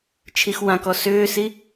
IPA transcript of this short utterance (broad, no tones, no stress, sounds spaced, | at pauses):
t͡ʃʰ i x w ã k ɔ s ʏː s i